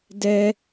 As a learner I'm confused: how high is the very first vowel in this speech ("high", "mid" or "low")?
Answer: mid